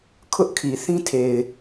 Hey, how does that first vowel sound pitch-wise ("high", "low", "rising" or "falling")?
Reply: high